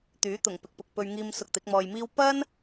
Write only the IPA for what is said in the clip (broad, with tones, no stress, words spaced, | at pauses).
t̪yː˨˥ t̪ʊ˨˩ŋ pɪ˨k̚pʊ˨k̚pɵ˧ɥ ŋiː˧m sʊ˧k̚t̪ɪ˨˥k̚mɔː˧jmiː˥w pɐ˥n